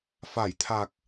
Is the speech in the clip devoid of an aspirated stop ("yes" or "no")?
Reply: no